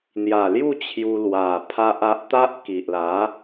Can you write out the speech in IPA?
n̪ja˨˩lju˥˧ t͡ɕʰju˧lwa˨˩ pʰa˦ʔa˦ʔ t̪a˦ʔ ki˨ʔla˨˦

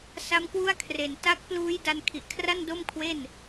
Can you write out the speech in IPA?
sa˦˥mkwu˥˩a̯kʰre˨˩n ta˦˥k̚pluː˦˥jda˧n kʰi˨˩ʔkʰra˥˩ndo˥˩mkʰwe˥˩n

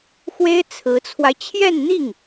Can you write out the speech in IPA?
xwe˥ɪ̯ t͡sʰɹ̩˧˥t͡sʰwa˧ɪ̯ t͡ɕʰjɛ˥˧n n̪i˥˩ŋ

